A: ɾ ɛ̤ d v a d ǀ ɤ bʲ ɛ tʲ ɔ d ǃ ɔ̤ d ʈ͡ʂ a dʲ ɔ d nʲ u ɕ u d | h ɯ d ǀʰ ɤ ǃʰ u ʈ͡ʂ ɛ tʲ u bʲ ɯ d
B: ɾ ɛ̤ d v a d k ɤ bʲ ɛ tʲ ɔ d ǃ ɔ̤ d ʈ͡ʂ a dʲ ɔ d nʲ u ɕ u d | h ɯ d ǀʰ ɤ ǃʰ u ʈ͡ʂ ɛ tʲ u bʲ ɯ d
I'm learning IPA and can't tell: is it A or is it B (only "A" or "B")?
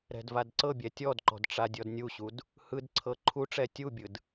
A